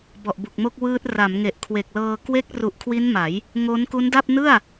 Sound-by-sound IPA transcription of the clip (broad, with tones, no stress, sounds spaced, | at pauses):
b ɔ˨˩ ʔ b u˨˩ k̚ m o˥˩ k̚ w ɯː˦˥ t̚ r a˩˦ m ŋ e˨˩ ʔ kʰ w e˨˩ k̚ l ɤː˧ k w e˦˥ k̚ r u˨˩ ʔ kʰ w i˦˥ n m a˩˦ j | ŋ o˦˥ n k u˦˥ n d a˥˩ p̚ n ɯ˥˩ a̯